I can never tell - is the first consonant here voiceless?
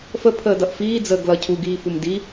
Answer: yes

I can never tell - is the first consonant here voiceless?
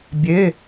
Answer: no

